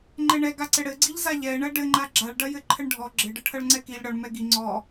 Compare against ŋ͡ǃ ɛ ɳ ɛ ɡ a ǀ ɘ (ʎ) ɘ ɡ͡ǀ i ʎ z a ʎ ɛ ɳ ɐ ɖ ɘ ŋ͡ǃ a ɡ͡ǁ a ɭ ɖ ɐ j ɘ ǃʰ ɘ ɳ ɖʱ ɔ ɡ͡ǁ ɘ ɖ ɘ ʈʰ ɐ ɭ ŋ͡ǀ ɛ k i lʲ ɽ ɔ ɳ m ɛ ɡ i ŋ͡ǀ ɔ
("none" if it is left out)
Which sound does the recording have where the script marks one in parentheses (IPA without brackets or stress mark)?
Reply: ɽ